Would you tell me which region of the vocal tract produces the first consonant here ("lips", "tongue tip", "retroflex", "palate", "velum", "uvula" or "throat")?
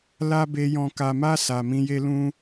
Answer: tongue tip